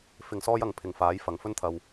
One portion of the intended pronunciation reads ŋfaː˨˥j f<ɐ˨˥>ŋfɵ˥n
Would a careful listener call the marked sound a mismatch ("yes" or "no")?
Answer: yes